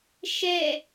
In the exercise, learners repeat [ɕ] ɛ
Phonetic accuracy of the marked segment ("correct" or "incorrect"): incorrect